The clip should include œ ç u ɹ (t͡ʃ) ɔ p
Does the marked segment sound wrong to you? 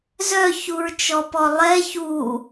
no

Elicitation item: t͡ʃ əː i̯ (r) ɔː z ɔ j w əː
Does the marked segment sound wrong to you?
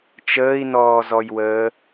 yes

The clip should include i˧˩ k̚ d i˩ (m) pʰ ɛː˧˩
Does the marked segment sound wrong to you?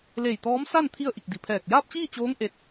yes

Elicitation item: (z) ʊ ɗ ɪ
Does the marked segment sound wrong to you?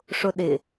yes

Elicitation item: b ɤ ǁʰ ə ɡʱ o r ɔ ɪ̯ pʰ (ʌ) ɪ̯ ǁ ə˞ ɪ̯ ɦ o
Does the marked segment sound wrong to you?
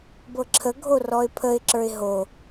yes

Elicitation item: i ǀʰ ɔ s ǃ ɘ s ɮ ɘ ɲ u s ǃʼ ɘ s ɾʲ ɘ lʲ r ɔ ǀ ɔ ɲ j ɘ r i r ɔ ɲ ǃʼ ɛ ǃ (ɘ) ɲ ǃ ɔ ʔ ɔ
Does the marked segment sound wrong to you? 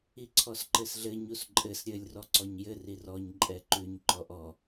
yes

